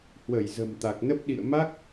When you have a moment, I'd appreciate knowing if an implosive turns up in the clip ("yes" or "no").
yes